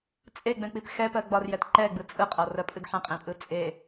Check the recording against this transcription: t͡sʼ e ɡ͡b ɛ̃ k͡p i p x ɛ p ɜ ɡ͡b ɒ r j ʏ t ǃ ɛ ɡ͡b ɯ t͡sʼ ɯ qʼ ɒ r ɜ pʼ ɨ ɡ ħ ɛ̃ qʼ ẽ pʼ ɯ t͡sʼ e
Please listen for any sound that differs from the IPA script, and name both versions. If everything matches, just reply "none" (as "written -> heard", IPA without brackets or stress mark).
ʏ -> ɛ